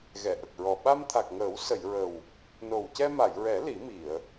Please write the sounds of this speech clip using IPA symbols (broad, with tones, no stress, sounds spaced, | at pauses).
ɣ ɛ˨˩˨ ʔ ə˨˩ k̚ ɹ ɔ˨˩ ɓ a˧ m t̪ʰ a˨˩ k̚ ŋ əː˨˩˦ w s ə˨˩˨ j ɹ ə˨˩ w | n o˨˩ w c ɛ˧ m a˨˩˨ j ɹ ɛ˨˩˦ l i˨˩˦ m i˨˩˨ ə̯